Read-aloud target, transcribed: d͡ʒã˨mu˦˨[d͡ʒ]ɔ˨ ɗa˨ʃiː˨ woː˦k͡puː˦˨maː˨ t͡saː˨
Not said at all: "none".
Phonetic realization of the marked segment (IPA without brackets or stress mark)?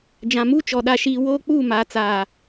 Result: t͡ʃ